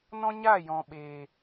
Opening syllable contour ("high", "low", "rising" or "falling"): high